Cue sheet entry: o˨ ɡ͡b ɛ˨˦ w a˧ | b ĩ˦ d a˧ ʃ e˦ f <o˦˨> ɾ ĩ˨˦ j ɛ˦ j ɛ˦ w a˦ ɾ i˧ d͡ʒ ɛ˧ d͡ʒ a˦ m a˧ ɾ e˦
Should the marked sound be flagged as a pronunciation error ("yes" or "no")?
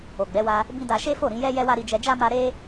no